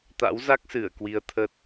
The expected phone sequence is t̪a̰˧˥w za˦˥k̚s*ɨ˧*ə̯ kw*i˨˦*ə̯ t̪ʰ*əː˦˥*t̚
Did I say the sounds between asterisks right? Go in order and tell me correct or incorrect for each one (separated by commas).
incorrect, correct, correct